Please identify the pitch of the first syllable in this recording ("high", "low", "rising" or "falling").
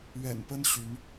low